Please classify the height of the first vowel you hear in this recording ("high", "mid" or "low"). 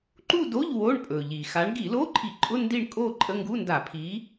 high